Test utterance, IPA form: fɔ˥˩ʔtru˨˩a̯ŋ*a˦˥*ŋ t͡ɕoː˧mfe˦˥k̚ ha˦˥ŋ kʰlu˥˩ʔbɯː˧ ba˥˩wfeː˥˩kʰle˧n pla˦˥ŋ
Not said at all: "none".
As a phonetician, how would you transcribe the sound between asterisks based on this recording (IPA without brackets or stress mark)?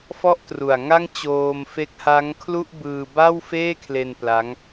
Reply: a˥˩